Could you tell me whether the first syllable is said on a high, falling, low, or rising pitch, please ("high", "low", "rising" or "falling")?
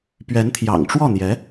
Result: rising